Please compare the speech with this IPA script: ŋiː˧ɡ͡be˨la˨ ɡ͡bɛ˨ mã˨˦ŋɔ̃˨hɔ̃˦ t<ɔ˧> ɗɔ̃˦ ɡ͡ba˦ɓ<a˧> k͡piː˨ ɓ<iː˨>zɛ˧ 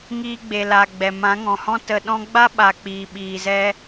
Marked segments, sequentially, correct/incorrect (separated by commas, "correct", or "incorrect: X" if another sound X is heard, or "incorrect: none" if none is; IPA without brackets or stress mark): incorrect: ə˧, incorrect: a˨, correct